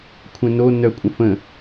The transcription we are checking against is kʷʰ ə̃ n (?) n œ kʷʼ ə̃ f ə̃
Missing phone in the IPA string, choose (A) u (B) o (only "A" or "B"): B